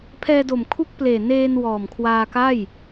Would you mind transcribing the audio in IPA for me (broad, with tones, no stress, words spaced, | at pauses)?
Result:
pʰɛː˧do˨˩m kʰu˦˥k̚pleː˨˩ neː˧n wɔː˨˩mkʰwaː˧ka˥˩j